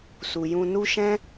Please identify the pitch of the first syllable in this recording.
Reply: low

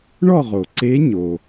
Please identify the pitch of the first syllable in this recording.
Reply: falling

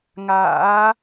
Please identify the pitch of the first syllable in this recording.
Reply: rising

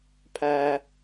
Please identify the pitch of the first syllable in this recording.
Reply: low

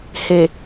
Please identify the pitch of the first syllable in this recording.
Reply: low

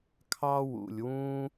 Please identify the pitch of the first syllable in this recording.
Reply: high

